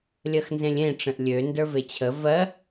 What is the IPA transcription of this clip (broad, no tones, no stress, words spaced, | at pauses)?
lʲɜxnzẽlʲẽ ʈ͡ʂə̃ʔlʲø ndə˞vet͡ɕʰə vɜ